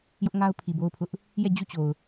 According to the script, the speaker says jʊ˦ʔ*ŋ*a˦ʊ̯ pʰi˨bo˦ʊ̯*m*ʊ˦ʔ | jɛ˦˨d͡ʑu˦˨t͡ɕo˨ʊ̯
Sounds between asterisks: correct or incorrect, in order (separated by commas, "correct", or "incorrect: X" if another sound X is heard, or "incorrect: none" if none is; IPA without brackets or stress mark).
correct, incorrect: pʰ